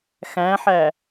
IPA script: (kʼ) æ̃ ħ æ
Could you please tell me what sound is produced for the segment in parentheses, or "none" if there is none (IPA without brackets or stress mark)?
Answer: x